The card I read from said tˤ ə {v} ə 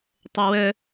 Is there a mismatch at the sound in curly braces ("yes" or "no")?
yes